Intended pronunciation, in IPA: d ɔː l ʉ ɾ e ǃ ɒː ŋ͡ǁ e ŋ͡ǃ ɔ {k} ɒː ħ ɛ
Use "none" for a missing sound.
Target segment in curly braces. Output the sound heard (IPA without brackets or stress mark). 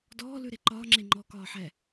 k